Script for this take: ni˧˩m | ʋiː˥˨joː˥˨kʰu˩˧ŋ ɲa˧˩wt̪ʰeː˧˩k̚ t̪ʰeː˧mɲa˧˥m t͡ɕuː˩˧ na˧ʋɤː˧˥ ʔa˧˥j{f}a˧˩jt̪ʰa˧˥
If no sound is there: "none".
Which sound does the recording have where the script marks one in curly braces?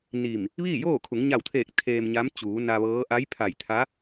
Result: pʰ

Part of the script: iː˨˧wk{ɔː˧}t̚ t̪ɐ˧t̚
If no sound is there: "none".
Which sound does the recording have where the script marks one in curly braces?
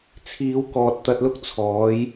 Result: ɔː˨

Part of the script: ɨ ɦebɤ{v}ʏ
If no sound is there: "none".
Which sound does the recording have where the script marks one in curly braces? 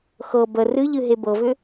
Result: v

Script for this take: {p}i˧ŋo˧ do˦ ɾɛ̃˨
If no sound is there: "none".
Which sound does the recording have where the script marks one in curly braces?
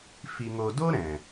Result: f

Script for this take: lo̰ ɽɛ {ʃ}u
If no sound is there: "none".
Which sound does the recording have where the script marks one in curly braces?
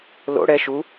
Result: ʃ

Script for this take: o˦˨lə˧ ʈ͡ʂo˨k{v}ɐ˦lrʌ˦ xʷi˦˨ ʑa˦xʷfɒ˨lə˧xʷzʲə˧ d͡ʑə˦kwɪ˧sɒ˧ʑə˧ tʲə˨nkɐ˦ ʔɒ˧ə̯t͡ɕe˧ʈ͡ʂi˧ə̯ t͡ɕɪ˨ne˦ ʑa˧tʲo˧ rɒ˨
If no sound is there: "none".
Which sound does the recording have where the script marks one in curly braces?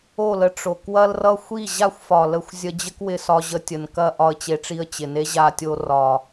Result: w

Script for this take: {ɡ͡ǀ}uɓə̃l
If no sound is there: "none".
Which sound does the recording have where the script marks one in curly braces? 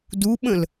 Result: d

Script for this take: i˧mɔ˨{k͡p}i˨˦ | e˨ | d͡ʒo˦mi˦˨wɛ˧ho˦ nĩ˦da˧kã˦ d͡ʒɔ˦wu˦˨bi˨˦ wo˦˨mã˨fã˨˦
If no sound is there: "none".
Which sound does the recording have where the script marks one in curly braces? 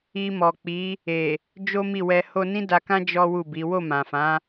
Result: k͡p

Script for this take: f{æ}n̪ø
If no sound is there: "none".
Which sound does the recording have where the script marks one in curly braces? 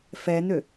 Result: ɛ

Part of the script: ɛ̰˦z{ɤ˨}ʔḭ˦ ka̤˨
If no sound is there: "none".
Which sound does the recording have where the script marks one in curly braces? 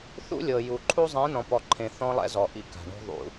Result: ɔ˨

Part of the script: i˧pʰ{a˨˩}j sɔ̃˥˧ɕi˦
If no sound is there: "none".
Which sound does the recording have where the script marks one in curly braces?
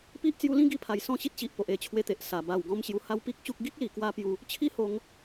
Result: a˨˩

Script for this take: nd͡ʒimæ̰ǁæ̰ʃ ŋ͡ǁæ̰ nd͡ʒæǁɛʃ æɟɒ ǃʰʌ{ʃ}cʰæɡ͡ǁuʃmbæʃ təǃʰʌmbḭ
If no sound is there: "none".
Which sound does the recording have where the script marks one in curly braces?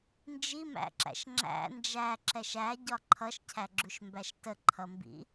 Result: ʃ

